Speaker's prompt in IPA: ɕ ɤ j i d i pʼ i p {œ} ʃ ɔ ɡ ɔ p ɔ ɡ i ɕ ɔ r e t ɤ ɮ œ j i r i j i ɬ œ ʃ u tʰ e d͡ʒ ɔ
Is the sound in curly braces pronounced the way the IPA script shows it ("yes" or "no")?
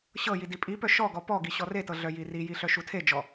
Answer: yes